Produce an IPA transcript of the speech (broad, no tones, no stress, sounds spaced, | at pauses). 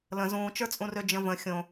l ə̃ z ũː t͡ʃ ə˞ t͡sʼ ũ r ø d͡ʒ ə̃ v ə̃ xʲ õ